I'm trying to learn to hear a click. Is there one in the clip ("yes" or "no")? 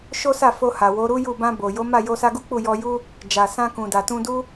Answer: no